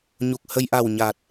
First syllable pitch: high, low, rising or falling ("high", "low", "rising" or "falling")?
low